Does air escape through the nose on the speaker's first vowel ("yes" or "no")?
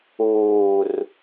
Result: no